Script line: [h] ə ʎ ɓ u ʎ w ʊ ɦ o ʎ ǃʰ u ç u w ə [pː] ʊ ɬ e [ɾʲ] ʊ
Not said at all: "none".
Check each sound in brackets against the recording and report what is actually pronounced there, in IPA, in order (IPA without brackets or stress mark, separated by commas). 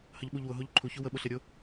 h, ɓ, ɾʲ